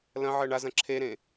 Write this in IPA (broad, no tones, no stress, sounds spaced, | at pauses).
l ɐ̃ ʕ ɜ ɳ a z ɐ̃ ǁʰ e ɾ ẽ